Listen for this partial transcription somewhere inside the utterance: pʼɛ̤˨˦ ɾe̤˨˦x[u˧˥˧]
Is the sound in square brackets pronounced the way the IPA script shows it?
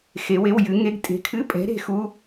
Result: yes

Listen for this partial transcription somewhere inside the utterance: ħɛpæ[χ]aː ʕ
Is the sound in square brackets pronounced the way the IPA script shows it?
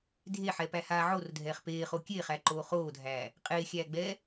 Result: no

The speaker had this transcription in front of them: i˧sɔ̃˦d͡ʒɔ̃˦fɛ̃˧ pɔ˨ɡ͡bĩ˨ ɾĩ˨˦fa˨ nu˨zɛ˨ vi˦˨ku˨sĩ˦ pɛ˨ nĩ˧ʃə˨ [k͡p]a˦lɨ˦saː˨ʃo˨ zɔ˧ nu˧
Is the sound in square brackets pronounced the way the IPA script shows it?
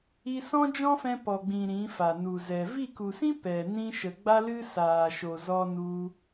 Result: no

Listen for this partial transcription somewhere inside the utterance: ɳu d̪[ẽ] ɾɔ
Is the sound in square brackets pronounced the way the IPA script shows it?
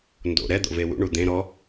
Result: yes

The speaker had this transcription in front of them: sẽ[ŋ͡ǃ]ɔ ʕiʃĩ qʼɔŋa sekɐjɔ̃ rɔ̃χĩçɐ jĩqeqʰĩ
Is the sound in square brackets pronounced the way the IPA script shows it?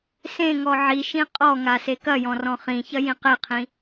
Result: no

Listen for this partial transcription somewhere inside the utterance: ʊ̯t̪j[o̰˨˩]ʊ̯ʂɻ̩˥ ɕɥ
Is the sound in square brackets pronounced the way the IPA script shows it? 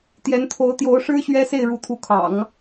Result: no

